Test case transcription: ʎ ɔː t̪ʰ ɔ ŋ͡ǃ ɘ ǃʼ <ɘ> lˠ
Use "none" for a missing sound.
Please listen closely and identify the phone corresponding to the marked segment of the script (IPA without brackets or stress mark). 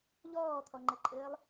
ɘː